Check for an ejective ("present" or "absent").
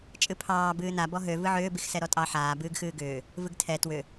present